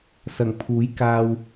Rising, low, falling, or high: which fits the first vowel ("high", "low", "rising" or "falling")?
low